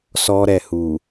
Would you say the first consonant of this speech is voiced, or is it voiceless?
voiceless